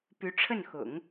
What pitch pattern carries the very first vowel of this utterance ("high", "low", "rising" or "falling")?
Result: rising